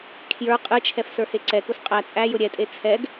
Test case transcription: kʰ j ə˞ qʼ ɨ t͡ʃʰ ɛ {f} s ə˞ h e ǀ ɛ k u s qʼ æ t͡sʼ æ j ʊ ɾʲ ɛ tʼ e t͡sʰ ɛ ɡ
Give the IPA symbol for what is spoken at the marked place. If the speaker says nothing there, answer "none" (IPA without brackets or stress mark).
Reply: f